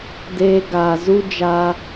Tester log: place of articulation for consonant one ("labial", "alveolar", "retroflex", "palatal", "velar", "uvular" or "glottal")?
alveolar